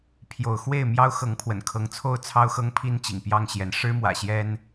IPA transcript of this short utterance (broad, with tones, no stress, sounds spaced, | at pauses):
pʰ j o˨˦ ʊ̯ x w e˥˨ ɪ̯ m j ɑ˦ ʊ̯ x ɤ˨˦ ŋ pʰ w ə̰˨˩ n kʰ ɤ˨˦ ŋ t͡sʰ o˥˨ ʊ̯ t͡sʰ ɑ˦ ʊ̯ x ɤ˦ ŋ pʰ i˦ n t͡ɕ ḭ˨˩ ŋ p j ɑ˥˨ ŋ ɕ j ɛ˨˦ n ʂ ɻ̩˦ m w ä̰˨˩ ɕ j ɛ˦ n